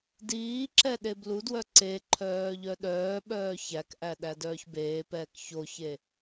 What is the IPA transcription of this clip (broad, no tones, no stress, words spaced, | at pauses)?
diːǁɛ ɗebludwœ ǀe ǃʰœːʎœɗœːɓœː çækʔæ ɗædœːçbeːpɛːk çoçe